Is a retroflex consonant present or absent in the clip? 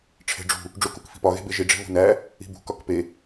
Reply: present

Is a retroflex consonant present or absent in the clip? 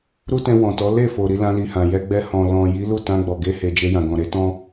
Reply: absent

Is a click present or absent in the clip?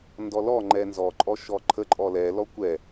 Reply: present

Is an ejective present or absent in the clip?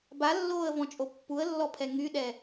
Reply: present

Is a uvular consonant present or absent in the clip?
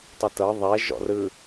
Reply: absent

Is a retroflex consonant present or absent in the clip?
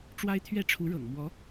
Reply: present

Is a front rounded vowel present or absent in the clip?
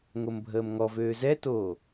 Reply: present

